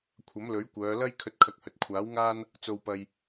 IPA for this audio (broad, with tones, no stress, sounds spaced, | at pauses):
kʷʰ ɐ˨˥ m l ɵ˨˥ ɥ kʷ œː˨˧ l ɐ˥ j kʰ ɵ˧ t̚ kʰ ɐ˧ k̚ h ɵ˨ t̚ kʷʰ aː˨˥ w ŋ aː˥ n | t͡s o˧ w p ɐ˧ j